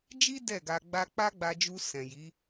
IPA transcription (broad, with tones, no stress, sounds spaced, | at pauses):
d͡ʒ i˦ d ɛ˦˨ ɡ a˧ ɡ͡b a˧ k͡p a˦ ɡ͡b a˧ d͡ʒ u˧ s ɛ̃˨ j i˨˦